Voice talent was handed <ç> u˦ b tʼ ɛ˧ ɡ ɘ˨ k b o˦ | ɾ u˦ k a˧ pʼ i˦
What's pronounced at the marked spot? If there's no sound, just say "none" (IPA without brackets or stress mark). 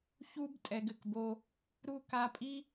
ç